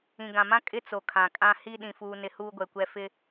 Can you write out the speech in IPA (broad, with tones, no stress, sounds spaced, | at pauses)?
ĩ˨ ɡ ã˨ m ã˦ kʼ ɪ˦ t͡s o˨ kʰ ã˨ kʼ ã˦ h i˦ ɗ ĩ˨ f uː˨ n ɪ˨ h uː˦ ɡʷ ɛ˨ kʷ ɛ˦ f ɪ˦